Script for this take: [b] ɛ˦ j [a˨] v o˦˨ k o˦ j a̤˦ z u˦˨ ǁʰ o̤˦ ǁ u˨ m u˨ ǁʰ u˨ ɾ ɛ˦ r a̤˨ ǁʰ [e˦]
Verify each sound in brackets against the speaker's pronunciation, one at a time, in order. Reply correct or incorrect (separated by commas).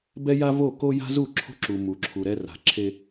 correct, incorrect, correct